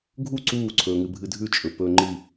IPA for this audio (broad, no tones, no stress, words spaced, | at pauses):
ɡʱu ǀuːǀʰɵːŋɨ bʱɨdʱʉt͡ʃʼɵ pɵːŋ͡ǃi